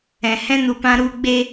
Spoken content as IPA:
ɛ̃˨ hɛ̃˦nu˨pã˦ ɾu˧ɡ͡be˧

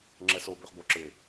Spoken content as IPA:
ŋ͡ǁɛso bøχboǁɪː

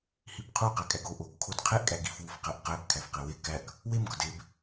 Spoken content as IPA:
hibqʰu qækʼæɡo ʔoɡ kʰodqʰeʔ kʼæɡif wufqæʔqæb kʰæfqewe kæk | wem ɡɒdeb

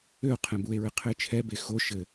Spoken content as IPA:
øo̯qʰɛ̃ bue̯ɹɘ qʰɘːt͡ʃʰɛbe xo ʃɘ

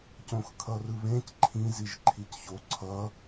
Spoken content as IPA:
cõxkʰʌrɯβẽc ǃʰĩ ziʒǃʰicço ǀʰʌ

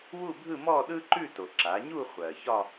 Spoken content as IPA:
wu˥˧bʱɯ˥˧mɔ˥˧ ɗɯ˥ǃʉ˥˧to˩ ǁa˩˧ɲu˥˧ χʷɜ˩çɒ˥˧

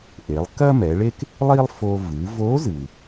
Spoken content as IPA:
ʔe˩˧lˠ kɐ˥mɛ˩˧ɭe˥k | lˠi˥lˠfo˧ vɨ˩˧vo˧˥zɨ˩

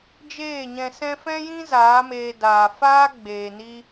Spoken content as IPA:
d͡ʒeː˦˨ɲɛ̃˧ sɛ̃˦ fɛ̃˦jĩ˦ zaː˨˦meː˧daː˨ faː˦ɡ͡beː˨ni˧

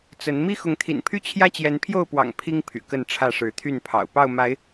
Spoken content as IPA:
t͡sə˨˦n mi˦xʊ˨˦ŋt̪ʰḭ˨˩npʰy˥˨ t͡ɕʰjä˦t͡ɕjɛ˨˦npʰjo˥˨ʊ̯pwɑ̰˨˩ŋ pʰi˦ŋ pʰy̰˨˩kə˥˨nʈ͡ʂʰä˥˨ ʂɻ̩˨˦t̪ʰy˥˨npʰɑ̰˨˩ʊ̯ pɑ˥˨ʊ̯ma˨˦ɪ̯

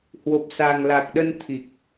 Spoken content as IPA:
hwo˨˩p̚sa˨˩ŋla˨˩k̚ɗə˧n t̪ʰi˨˩k̚

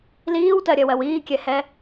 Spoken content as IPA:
liːwtɜɾʲɜwɜw iːkʲɛhɛ

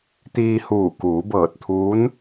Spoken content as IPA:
t̪iː˧huː˧˩ kuː˩˧bɤː˧˩t̚t̪ʰuː˧˥n

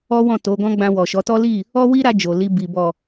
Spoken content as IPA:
ɔ˦ wɔ̃˦˨to˨˦ɡɔ̃˦ɡ͡bã˧ wɔ˨ʃɔ˨˦tɔ˦li˦˨ | ɔ˦wi˦ɾa˧ d͡ʒo˨li˧ bi˨ bɔ˨

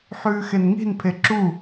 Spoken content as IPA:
ħʉːxenŋi̤n pʰeǁu

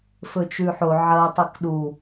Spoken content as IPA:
fɵt͡ʃʉħo ʕɐ tˤɨkɗu

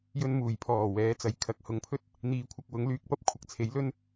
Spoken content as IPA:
jɵ˧nmuː˨˩jpʰɔː˨˩ wɛː˨˥t͡sɐ˨˧jkʰɐ˨k̚ hʊ˨ŋpʰɵ˥t̚ | n̪iː˧kʷʰɐ˧k̚wʊ˨˥ŋ lyː˨k̚pɐ˥p̚ kʷʰɐ˧k̚t͡sʰe˨˥jlɵ˥n

